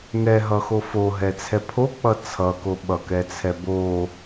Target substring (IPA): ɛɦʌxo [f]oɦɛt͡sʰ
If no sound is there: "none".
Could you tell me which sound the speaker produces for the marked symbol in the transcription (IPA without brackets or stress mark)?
f